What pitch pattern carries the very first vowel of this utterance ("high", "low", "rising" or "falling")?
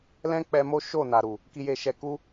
high